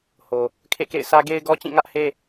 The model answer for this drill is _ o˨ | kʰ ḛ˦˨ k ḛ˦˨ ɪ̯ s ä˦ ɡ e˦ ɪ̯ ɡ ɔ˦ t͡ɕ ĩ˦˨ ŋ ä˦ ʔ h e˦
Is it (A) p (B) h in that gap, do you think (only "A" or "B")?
B